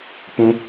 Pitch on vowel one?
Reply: high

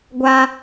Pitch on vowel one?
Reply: high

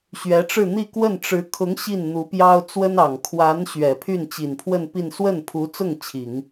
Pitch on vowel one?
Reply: rising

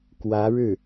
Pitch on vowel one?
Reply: rising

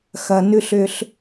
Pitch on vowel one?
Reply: low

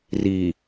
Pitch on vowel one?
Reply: low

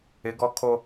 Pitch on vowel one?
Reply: rising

